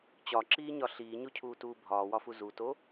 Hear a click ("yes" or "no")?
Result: yes